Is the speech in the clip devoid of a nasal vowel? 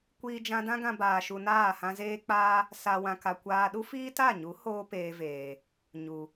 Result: no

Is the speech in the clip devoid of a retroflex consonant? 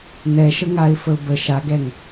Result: yes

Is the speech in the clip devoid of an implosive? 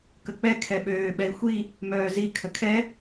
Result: no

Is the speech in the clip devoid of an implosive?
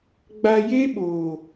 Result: no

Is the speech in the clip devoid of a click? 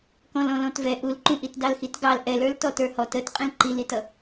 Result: no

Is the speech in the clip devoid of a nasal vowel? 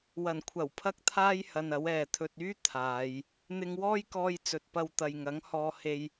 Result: yes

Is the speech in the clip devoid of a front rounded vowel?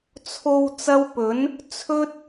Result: yes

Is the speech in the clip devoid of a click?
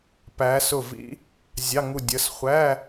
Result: yes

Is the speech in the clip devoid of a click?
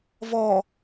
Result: yes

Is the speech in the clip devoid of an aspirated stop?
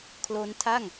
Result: no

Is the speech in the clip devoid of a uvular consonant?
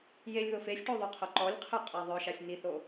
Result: no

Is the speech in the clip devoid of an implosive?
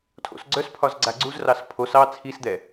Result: yes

